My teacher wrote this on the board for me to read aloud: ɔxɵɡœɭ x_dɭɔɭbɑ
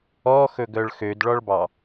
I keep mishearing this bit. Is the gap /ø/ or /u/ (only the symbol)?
ø